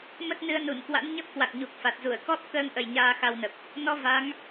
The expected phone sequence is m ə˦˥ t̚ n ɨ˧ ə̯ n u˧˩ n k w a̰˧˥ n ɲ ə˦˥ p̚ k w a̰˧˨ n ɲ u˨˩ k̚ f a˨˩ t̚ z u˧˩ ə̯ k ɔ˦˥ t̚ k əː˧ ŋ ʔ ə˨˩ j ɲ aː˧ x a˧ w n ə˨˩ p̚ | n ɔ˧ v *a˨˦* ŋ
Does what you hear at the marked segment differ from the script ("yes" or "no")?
no